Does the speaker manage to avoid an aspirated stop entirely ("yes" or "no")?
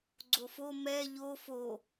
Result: yes